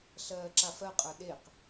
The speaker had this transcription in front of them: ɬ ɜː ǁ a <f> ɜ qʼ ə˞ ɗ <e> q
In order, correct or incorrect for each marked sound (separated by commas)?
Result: correct, correct